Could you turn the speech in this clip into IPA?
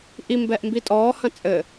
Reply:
ʔ i m b ɛ ʔ m b i tʼ ɔː h ɐ̃ t͡sʼ ɘ

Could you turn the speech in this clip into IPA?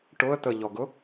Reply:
ʈ ʊ ə̯ t̪ ə ʎ ɔ ɡ ʊ

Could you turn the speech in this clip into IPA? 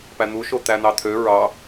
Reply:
p æ n̪ u ʃ o t̪ æ n̪ ɑ t̪ʰ ø ɹ ɑ

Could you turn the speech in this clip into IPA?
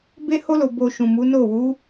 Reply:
b e˦ h o˦ l o˧ b o˧ ʃ ũ˨ m u˨˦ n o˦˨ w u˨˦

